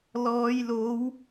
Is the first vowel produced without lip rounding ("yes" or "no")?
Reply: no